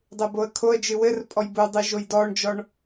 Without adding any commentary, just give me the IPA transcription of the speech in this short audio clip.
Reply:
dˤ e b o ə̯ kʰ o ə̯ d͡ʒ ɨ w ɘ r pʼ ɔ j b u dˤ ɨ ʒ o j d ɔ ɳ d͡ʒ ɔ ɳ

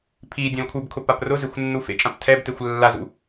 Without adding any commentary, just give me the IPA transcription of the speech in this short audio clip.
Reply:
pʰ i dʲ ɔ̃ l kʰ u b kʰ ʊ p a p r ʊ z e xʷ nː u f ḛ t͡ʃʼ ã p tʰ ɛ b t e xʷ lː a z ṵ

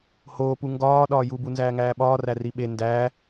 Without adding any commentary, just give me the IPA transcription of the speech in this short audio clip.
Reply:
h oː p u ŋ ɡ ɒː ɗ ɒː j u b u n z æː ŋ æː ɓ ɒː r æ r i ɓ e n d æː

